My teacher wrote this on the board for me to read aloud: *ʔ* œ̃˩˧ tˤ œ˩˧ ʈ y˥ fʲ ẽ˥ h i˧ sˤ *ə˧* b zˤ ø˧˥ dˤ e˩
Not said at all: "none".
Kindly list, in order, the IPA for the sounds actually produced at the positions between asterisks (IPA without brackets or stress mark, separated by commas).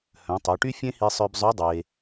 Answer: h, œ˧